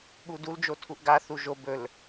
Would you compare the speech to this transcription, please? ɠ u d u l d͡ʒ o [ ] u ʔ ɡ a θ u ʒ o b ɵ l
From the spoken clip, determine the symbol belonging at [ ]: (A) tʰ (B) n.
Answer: A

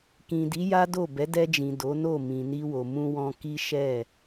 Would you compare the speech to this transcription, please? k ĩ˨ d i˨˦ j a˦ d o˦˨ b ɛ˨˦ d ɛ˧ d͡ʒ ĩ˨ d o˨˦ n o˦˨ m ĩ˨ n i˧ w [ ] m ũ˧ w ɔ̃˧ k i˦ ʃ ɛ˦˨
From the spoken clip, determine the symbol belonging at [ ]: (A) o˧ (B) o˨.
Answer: B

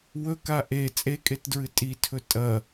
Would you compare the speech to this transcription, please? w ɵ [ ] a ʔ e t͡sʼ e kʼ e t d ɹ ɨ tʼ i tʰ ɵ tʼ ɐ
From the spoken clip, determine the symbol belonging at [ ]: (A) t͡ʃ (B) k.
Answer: B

